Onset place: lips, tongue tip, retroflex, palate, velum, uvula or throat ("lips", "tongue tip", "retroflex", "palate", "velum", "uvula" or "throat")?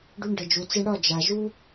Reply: retroflex